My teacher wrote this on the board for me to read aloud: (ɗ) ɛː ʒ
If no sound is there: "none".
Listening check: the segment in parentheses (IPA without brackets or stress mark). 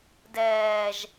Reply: d